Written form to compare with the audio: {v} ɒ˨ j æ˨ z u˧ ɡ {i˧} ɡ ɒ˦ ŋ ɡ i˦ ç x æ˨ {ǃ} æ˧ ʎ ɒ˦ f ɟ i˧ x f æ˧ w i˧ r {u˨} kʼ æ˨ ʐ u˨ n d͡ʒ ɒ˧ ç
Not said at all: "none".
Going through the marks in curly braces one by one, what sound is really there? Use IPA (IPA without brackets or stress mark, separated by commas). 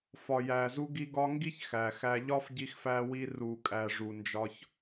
f, i˧, x, u˨